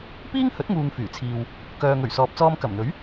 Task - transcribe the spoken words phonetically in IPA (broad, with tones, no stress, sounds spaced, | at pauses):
p iː˥ ŋ h ɵ˨˥ t̚ ŋ uː˨ ŋ f yː˨˩ t͡sʰ iː˨ w | k œː˨ ŋ ɵ˨˩ ɥ s ɔː˨ p̚ t͡s ɔː˧ m k ɐ˨˩ m n̪ ɵ˨˥ ɥ